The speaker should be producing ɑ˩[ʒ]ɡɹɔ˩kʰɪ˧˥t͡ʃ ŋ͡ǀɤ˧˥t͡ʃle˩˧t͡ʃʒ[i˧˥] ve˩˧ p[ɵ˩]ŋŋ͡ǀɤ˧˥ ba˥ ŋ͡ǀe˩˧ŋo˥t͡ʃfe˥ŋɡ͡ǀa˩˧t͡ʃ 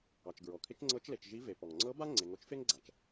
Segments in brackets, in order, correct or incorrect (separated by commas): incorrect, correct, incorrect